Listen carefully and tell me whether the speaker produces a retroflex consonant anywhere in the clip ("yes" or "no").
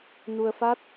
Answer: no